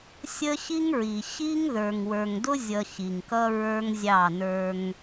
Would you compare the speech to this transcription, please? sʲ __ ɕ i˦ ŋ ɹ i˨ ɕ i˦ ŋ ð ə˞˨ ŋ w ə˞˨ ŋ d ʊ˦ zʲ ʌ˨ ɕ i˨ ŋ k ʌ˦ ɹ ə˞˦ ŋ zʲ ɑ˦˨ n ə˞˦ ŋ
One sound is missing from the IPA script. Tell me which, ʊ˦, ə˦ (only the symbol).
ə˦